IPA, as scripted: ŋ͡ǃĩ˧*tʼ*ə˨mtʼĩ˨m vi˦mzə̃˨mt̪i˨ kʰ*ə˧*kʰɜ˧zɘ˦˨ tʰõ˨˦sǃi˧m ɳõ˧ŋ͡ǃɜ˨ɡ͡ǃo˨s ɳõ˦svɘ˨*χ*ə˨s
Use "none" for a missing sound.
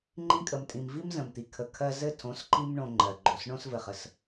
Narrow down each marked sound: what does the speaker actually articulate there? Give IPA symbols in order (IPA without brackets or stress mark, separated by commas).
kʼ, ə˨, χ